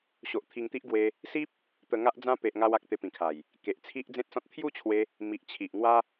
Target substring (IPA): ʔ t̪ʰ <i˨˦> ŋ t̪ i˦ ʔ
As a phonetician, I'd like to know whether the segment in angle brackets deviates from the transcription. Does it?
yes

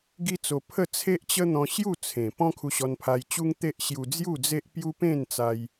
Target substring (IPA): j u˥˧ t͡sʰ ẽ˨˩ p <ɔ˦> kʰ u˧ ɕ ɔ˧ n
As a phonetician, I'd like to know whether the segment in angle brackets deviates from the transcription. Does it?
yes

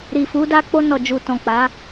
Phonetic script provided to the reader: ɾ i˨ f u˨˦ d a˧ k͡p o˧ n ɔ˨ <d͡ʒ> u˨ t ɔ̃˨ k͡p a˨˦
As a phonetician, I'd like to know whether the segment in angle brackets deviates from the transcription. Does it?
no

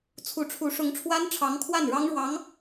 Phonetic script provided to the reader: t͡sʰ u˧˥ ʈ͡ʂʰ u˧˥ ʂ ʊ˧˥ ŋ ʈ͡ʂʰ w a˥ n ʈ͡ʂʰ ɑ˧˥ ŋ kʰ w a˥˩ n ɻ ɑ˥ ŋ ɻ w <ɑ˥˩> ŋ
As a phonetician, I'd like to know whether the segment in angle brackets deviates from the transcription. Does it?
yes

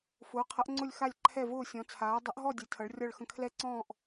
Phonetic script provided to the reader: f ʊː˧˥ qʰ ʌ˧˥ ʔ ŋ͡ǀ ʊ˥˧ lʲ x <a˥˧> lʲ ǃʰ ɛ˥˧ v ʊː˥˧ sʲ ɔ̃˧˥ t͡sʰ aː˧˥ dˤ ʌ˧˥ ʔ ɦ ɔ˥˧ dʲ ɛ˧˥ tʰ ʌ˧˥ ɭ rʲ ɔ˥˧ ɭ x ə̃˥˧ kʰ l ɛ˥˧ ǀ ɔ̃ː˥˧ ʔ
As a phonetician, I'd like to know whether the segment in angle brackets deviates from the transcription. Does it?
no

